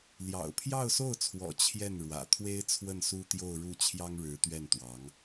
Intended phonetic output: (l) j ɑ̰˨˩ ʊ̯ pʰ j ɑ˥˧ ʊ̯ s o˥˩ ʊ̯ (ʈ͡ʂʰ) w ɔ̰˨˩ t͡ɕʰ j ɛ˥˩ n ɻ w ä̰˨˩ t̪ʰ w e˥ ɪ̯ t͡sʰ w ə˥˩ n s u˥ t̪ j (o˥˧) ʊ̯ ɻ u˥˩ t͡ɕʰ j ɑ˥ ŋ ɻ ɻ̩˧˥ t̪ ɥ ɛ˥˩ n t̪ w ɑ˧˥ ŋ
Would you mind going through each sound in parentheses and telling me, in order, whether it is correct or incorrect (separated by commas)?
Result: correct, incorrect, correct